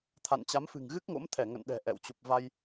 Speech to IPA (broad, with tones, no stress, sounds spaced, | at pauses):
t̪ʰ a̰˧˨ n t͡ɕ a˨˦ m f ɨ̤˨˩ ŋ ɣ ɨ˦˥ k̚ ŋ o̰˧˥ m t̪ʰ ɛ˧˩ ŋ ə̰˧˨ n ɗ ɛ̤˨˩ ʔ ɛ̰˧˨ w t͡ɕ u˨˩ p̚ v a˧ j